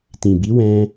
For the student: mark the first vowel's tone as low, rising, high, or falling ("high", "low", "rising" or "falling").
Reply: low